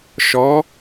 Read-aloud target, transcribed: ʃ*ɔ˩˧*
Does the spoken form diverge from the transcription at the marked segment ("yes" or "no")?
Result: no